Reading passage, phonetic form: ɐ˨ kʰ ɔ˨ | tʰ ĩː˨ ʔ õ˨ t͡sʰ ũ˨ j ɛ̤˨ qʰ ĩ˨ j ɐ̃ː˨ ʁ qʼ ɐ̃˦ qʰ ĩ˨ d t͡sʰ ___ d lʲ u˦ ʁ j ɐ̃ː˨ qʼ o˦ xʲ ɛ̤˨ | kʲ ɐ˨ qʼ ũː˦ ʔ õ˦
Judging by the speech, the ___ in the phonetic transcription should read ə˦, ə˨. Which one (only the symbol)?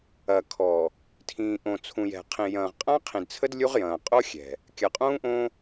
ə˦